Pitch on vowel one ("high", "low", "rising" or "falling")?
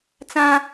high